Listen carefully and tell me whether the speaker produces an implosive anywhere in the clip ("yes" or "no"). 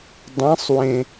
no